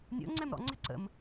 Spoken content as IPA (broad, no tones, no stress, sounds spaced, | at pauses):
nʲ o̰ ŋ͡ǀ ɛ m ɾ ɔ̰ ŋ͡ǀ ɛ̤ ǀ ə̰ m